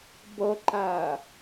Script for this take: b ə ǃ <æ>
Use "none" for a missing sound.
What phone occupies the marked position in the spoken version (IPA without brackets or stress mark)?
æ